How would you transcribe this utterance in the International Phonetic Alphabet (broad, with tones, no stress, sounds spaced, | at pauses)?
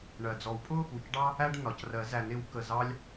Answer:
ɳ ɜ˩ d͡z ɔ˨˩˦ w pʼ ʊ˥ | u˩ c ɖ ɑ˥ | æ˥ ɖ n ɒ˩ c r ɜ˨˩˦ z æ˨˩˦ n ɪ˨˩˦ w k ə˩ z ɑ˥ lʲ